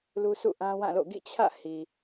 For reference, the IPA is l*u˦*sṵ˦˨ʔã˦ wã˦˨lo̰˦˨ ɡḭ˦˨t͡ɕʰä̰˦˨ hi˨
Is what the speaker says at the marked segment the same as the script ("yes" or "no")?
yes